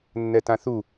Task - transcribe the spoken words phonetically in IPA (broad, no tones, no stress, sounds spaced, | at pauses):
nː ɛ t ã θ u